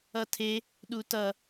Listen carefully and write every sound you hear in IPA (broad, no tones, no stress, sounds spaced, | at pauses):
ʌ tʰ e | ɗ u t ʌ